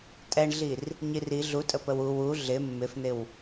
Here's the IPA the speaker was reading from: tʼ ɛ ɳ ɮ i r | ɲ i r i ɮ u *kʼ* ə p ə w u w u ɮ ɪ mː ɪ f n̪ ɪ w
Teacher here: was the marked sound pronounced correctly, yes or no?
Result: no